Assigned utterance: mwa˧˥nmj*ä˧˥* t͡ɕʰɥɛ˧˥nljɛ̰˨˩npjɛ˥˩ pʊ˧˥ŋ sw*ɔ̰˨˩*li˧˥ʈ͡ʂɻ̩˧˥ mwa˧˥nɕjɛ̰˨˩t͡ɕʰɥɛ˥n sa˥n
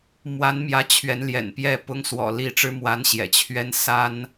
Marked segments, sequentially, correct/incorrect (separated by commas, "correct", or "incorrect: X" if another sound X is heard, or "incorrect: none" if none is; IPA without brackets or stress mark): correct, correct